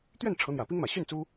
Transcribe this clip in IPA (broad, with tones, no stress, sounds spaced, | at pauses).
t̪ ɥ ɛ˥˩ n ʈ͡ʂʰ ɤ˧˥ n̪ j ä˨˩ p i˥ ŋ m ä˨˩ ɕ y˥˩ n t͡s u˥